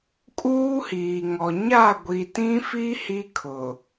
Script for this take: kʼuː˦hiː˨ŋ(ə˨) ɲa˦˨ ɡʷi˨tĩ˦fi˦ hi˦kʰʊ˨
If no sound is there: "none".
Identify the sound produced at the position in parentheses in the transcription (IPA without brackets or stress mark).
ɔ˨